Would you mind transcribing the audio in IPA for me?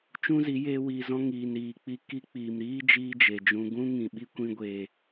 t͡ʃ ũ˦ z i˨˦ j eː˦ w i˧ z ɔ̃˦ ŋ iː˨ n ɾ iː˨ k͡p i˧ k i˦ k͡p iː˨ m ɾ iː˦ d͡ʒ iː˦ d͡ʒ e˨ d͡ʒ ũ˧ ɡ ũ˦ ŋ ĩ˨ ɓ i˦ kʷ ĩ˧ ɡʷ eː˨

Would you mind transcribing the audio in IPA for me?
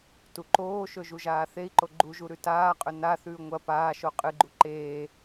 t u ǃ oː ʃ ɵ ʒ u ʒ aː θ e i̯ ǃ o ɡ͡ǃ u ʒ u ɾ ʉ t aː qʼ ɵ n a θ ʉː ŋʷ ɐ p aː ʃ o qʼ ɨ ɡ͡ǃ u ǃ eː

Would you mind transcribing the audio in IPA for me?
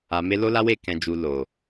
a˨ m e˧ l o˦ l a˦ w e˦˨ k ɛ̃˨ d͡ʒ u˨ l o˨

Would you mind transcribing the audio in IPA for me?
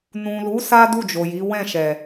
n ũ˨ l u˨˦ s a˦ d u˦˨ d͡ʒ o˨ j i˨˦ w ɛ̃˦˨ ʃ ɛ˨

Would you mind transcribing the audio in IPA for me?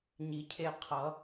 ɲ i˨˩˦ cʰ e˧ qʰ ʌ˨˩˦

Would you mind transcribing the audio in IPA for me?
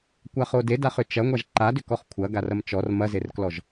kʷ a χ o d e d a χ ʏ t͡ʃ ɐ ŋʷ a ʒ ǃ a d ʏ k ɔ χ kʷʰ ɐ ɡ a r ɐ m t͡ʃ ɔ r m ɐ z e r k l ɔ ʒ

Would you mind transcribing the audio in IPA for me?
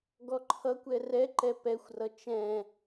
ɡ ɔ ǃʰ ʌ kʷ ɛ r ɛ ǃ ɛ p ɛ xʷ r ʌ t͡ʃ ɛ̃

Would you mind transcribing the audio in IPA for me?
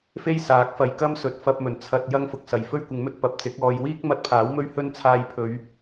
f e˥ j s aː˨˥ k̚ f ɐ˨ j k ɐ˥ m s ɵ˨ t̚ f ɐ˧ p̚ m ɵ˨˩ n t͡sʰ ɐ˧ t̚ j ɐ˥ ŋ f ʊ˨ k̚ s ɐ˨ j f ɵ˥ ɥ kʷ ɪ˨˧ ŋ m ɵ˥ t̚ p ɐ˨ p̚ t͡s ɪ˨˥ k̚ ɔː˧ j w iː˥ k̚ m ɐ˧ t̚ pʰ aː˨˥ w m ɵ˥ ɥ h ɵ˥ n t͡sʰ aː˧ j pʰ ɵ˨˧ ɥ

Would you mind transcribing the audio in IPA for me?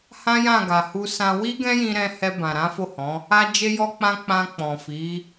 h ã˦ j ã˦˨ ɡ a˨ h u˧ s ã˧ w i˦ ɡ ɛ̃˦ j ĩ˧ ɾ ɛ̃˧ h ɛ˧ b ã˨ ɾ ã˨˦ f o˦˨ h ɔ̃˨˦ | a˧ d͡ʒ e˧ j ɔ˧ k͡p ã˧ k͡p ã˧ k͡p ɔ̃˨ f i˨˦

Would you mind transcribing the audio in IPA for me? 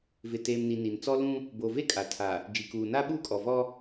v ɪ˨ t eː˨ m n i˨ n i˨ n t͡s ɔ˦ l ũ˦ | b o˨ v e˦ kʼ a˨ tʰ a˨ | d͡ʒ i˨ k uː˨ n a˦ ɓ uː˦ kʼ ɔ˨ v ɔ˦

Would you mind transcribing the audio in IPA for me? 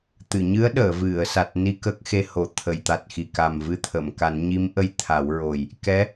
t̪ ɨ˨˩˨ ɲ ɨ˧˥ ə̯ ɗ əː˨˩˨ v ɨ˨˩˨ ə̯ s a˨˩ t̚ n i˧ k ə˦˥ k̚ x e˧ h o˨˩˨ t̪ʰ ə˨˩˨ j t̪ a˨˩ t̚ x i˨˩ k a˨˩ m v ɨ˧ t̪ʰ ə˨˩˨ m k a˨˩˦ n ɲ i˧˥ m ʔ ə˧ j t̪ʰ a˨˩˦ w ɹ o˨˩ j | k ɛ˧˥

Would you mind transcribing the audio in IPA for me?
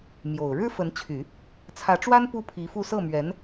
m j o˨˩ ʊ̯ ɻ ɻ̩˥ f ə˧˥ n t͡ɕʰ y˨˩˦ | t͡sʰ ä˧˥ ʈ͡ʂ w a˥ n p u˥ pʰ i˧˥ f u˥˧ s ɤ˥˩ m ɥ ɛ˧˥ n

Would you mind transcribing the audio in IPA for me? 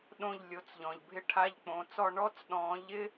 ɗ õ˥˧ ʎ lʲ o˨˦ t͡s ʎ ɔ̃˨ ʎ bʱ ɪ˥˧ ʈʰ a˧˥˧ ʎ k͡p õ˨˦ t͡s ɔ˥˧ ɳ ɔ˧˥˧ t͡s ɗ ɔ̃ː˨˦ ʎ ɪ˥

